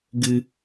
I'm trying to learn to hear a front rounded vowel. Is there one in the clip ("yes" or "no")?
no